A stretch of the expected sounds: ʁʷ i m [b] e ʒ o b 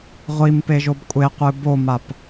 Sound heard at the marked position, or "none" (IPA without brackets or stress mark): p